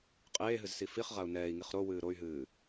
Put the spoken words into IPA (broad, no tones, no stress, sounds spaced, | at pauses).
qʼ eː ɦ ɨ z s i f i χ ʁ a u̯ n ɛː i̯ ŋ i χ ɾ o w ɨː ɾ o y̯ ɦ ɨː